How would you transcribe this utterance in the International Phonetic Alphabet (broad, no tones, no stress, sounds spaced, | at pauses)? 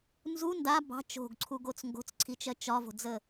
n z u n d a b ɑ̤ t͡ʃ o̤ ɡ ǀʰ u ɡ o t͡s ŋ ɡ o̤ t͡s ǀʰ i t͡ʃ ɜ t͡ʃ ɒ v o̤ d͡z ə